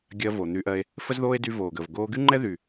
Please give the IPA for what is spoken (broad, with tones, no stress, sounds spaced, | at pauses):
ɡʲ ɜ˧ v o˨ n̪ y˧ ʔ ɜ˧ e̯ | f ə˦ z ð oː˦ e̯ d y˧ v oː˨ ɡ əː˨ v ɡ oː˧ ɡ y˦ ŋ͡ǃ ɛ˦ ð y˨